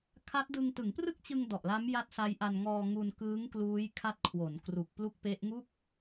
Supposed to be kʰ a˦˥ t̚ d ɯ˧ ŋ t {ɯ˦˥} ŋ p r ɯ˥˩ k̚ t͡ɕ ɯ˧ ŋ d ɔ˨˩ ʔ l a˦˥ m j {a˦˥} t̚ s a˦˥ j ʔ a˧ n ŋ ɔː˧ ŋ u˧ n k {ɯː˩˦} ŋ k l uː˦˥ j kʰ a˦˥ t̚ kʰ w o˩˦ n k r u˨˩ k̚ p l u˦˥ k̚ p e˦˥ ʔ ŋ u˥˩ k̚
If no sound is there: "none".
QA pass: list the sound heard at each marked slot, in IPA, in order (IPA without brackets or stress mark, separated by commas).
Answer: ɯ˩˦, a˦˥, ɯː˦˥